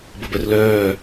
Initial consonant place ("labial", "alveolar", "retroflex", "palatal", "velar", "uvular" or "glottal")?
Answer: labial